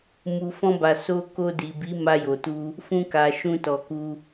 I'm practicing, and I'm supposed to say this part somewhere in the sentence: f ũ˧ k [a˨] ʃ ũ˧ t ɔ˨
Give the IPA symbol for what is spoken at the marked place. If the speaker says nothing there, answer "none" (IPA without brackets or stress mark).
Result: a˨